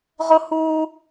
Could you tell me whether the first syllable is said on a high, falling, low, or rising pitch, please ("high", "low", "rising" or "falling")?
high